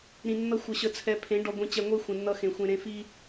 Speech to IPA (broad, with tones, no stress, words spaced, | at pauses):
ɾĩ˨ nːʌ˦ xʷə˨ɕə˨t͡sʰɛ˨ pʰẽ˨˦ ɖɔ˨ɡʷĩ˨t͡ɕɛ˨ŋʷe˦ xʷẽ˨nːʌ˦xẽ˨ xʷẽ˨ɾẽ˨fi˦